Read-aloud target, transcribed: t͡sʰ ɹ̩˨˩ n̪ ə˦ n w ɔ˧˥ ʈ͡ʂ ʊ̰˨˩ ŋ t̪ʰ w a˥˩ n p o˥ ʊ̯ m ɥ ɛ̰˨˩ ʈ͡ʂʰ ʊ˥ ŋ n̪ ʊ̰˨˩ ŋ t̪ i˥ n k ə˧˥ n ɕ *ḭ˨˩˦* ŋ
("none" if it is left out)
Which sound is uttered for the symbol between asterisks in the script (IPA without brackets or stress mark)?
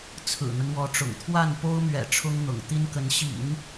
ḭ˨˩˦